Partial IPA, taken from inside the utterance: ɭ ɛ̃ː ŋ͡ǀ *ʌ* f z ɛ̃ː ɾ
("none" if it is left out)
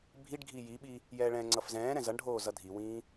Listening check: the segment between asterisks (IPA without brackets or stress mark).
ʌ